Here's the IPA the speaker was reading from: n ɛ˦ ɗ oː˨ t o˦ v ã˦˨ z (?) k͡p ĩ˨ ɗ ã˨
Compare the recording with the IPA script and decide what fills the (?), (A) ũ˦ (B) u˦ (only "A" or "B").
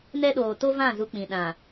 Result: B